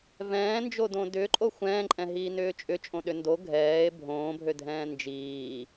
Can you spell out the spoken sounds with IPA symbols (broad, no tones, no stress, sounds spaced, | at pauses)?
v ɛ̃ː n d͡ʒ o d õ d ʏː ǃʼ o xʷ ɛ̃ː ǃʼ ɛ̃ ɦ iː n ʏː t͡ʃʼ ʏ t͡ʃʼ õ ɗ ʏ n d o ɡʱ ɛː e̯ bʱ õː bʱ ø dʱ ɛ̃ː n d͡ʒ iː